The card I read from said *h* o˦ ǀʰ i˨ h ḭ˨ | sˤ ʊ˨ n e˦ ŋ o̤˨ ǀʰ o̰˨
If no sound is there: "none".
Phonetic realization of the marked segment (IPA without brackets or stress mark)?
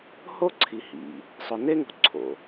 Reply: h